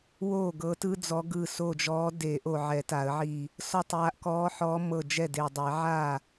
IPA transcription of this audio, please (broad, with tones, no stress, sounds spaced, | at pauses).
w oː˥˩ ɡ ɤ˨˦ t ɯ˦ d͡z ɔ˨˦ ɡ ɯ˧˩ s o˧˩ d͡ʒ ɔː˨˦ d e˨˩˦ ʔ o˧˩ ʕ ɛ˨˩˦ t a˨˩˦ ə̯ ʕ i˧˩ | s ɔ˧˩ tˤ j a˨˦ ʔ k ɔː˨˦ ħ ɔː˨˦ m ɤ˧˩ d͡ʒ ɛ˥˩ d e˧˩ dˤ e˨˩˦ ʕ a˥˩